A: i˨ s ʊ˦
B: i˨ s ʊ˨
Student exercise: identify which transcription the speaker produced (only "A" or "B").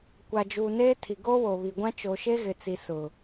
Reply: B